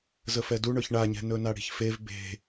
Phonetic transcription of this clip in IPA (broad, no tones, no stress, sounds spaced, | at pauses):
z ə f ɛ d u ɳ ɵ ç ɳ a ɲ ɛ̤ n ɵ n a ɽ i̤ ç f e v b e̤